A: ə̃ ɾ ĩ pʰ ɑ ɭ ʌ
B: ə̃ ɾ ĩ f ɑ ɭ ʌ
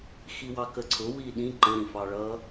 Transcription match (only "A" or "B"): B